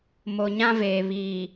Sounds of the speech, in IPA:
m o˨ ɲ ã˦ v eː˨ β iː˨

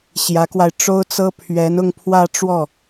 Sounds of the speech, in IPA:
ɕ j ä˧˥ k w a˧ ɪ̯ ʈ͡ʂ o˥ ʊ̯ t͡s ɤ˥ pʰ ɥ ɛ˧˥ n ʊ˥˧ ŋ pʰ w ä˥˧ ʈ͡ʂ w ɔ˥˩

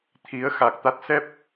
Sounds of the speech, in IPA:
t̪ʰ i˨˦ ə̯ x a˨˩ k̚ t̪ a˦˥ t̚ s ɛ˦˥ p̚

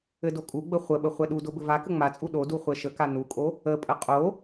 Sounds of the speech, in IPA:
ɘ d o kʼ u ɡ͡b ə χʷ ə ɓ ə χʷ ɛ ɗ u d o b ɘ v a k ə ŋ͡m a t͡sʼ u ɗ o d u χʷ ɛ ʃ ə k a n u kʼ o | ə pʼ ə qʼ o

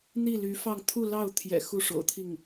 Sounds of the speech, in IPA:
n̪ i˥˩ l y˧˥ f ɑ˥˧ ŋ t̪ʰ u˥˧ l ɑ˥˩ ʊ̯ t̪ʰ j ɛ̰˨˩ x u˥˩ ʂ o̰˨˩ ʊ̯ t̪ʰ i˥˩ ŋ

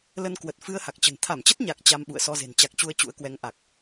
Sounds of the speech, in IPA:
l ə˧ n k w ə˨˩ t̚ f ɨ˧ ə̯ h a˨˩ k̚ t͡ɕ ə̤˨˩ n t̪ʰ a˧˩ m t͡ɕ ə˦˥ t̚ ɲ a˨˩ k̚ t͡ɕ a˧ m ɓ ṵ˧˨ ə̯ s ɔ˧ z e̤˨˩ n t͡ɕ a˨˩ k̚ t͡ɕ u˧ ə̯ t͡ɕ ṵ˧˥ ə̯ k w ɛ˨˦ ŋ ʔ a˨˩ k̚

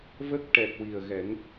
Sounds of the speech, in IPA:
v ə˦˥ k̚ ʈ ɛ˨˩ k̚ w i˨˩ ə̯ ɣ ɛ˨˩˦ ŋ

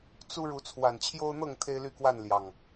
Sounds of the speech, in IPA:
t͡s u˦ ɻ u˨˦ t͡sʰ w a˨˩ n t͡ɕʰ j o˦ ʊ̯ n̪ ɤ˥˨ ŋ t̪ʰ e˦ ɪ̯ l y˥˨ k w a˥˨ n l j ɑ˨˩ ŋ

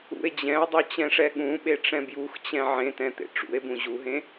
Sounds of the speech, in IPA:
ṵ e̯ d͡ʑ ɛ̃ o̯ dˤ o t͡ɕ ɛ̃ ʂ ɛ ɠ ũ ɓ e ʈ͡ʂ ɛ̃ b j u x t͡ɕ ɛ̃ ʕ ẽ t ɛ̃ t̪ ḛ ʈ͡ʂ ṵ e̯ b ũ ʑ u ɦ ẽ

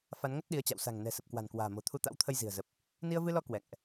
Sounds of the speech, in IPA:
f a˨˦ n ŋ ə˦˥ t̚ ɗ i˨˦ ə̯ t͡ɕ a̰˧˨ w s a̤˨˩ ŋ n ɛ̤˨˩ s ə˨˩ p̚ k w a̤˨˩ n k w a̤ː˨˩ m o̤˨˩ t̪ʰ u˧ t̪ a̰˧˥ w t̪ʰ ə˧ j z i̤˨˩ ə̯ z ə˨˩ p̚ | n i˧ ə̯ v ɨ˧ l ɔ˧ k w ɛ̰˧˨ ŋ ʔ

